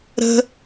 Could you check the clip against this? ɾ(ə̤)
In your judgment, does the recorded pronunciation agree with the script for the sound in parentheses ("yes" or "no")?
yes